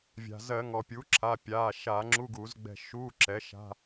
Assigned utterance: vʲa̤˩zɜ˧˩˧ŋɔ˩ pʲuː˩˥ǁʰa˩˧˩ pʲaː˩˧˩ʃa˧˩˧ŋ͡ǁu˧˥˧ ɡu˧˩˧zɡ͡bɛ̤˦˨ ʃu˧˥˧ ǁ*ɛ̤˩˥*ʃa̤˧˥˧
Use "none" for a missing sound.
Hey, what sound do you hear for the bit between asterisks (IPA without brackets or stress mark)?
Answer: ɛ˩˥